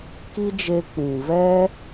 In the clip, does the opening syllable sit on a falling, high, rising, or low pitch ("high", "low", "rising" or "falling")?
high